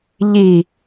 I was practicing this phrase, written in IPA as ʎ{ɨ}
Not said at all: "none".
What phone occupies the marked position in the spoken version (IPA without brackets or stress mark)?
i